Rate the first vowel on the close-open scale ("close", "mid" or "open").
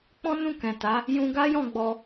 mid